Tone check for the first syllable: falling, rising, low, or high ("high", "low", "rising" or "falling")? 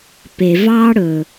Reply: low